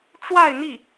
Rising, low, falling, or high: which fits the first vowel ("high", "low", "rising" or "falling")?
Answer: falling